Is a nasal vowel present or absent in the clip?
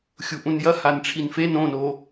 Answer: present